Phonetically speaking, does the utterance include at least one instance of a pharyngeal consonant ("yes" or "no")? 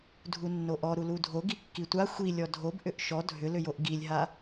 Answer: no